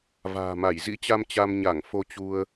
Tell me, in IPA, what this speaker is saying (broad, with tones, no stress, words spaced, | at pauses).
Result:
va̤ː˨˩ma˧˩j zḭ˧˥t͡ɕa˧m t͡ɕa˧mɲa˧˩ŋ fo˧t͡ɕu˧ə̯